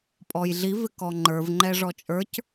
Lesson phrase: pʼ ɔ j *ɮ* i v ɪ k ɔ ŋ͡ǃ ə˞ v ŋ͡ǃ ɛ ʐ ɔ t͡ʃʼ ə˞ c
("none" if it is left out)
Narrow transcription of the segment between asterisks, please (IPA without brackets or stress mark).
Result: ɮ